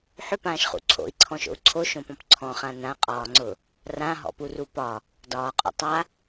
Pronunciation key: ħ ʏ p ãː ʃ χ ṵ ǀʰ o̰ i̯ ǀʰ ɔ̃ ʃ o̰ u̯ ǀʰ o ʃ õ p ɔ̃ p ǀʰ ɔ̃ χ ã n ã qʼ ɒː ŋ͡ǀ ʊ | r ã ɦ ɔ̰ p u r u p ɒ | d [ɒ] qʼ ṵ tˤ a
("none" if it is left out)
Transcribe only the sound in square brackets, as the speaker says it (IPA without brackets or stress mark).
ɒː